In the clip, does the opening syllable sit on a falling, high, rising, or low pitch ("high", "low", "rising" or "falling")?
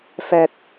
high